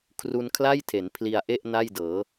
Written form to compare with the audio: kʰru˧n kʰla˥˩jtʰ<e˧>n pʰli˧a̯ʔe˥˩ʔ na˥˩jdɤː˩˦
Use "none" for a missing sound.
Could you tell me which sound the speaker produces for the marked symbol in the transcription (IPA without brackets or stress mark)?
e˩˦